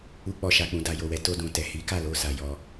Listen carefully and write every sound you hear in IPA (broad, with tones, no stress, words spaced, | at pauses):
u˧k͡pɔ˨ʃa˨k͡pũ˨ da˨ jo˨wɛ˨˦ to˧dũ˨ tɛ˨ hi˨˦ka˦˨lo˧ sa˨jɔ˧